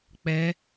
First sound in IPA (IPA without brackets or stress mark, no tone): k͡p